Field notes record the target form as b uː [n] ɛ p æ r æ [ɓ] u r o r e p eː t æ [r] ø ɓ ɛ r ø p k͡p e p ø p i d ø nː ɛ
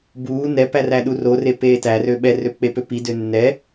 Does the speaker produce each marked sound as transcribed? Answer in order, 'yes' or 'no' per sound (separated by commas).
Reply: yes, no, yes